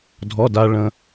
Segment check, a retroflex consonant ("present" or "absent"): present